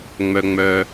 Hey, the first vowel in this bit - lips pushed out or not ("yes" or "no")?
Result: yes